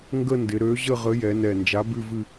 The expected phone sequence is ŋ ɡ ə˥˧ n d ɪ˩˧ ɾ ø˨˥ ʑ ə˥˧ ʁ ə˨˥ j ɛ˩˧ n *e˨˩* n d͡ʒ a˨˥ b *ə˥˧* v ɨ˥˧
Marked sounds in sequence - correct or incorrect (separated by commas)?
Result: incorrect, incorrect